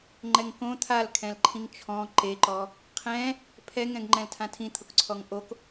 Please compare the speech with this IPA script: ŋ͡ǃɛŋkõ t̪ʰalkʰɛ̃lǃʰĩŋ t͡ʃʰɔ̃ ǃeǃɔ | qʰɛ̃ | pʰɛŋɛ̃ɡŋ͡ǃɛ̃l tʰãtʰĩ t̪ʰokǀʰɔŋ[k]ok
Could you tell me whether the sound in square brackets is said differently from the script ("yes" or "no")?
yes